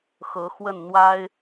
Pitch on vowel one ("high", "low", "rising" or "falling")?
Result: rising